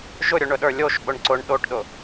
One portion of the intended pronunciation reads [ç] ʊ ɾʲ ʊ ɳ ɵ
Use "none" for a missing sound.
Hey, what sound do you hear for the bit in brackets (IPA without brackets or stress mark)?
ʒ